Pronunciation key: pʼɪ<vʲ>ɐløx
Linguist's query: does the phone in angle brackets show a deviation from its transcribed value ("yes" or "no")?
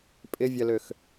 no